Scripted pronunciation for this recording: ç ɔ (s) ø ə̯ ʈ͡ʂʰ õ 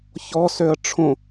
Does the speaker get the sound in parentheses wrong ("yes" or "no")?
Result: no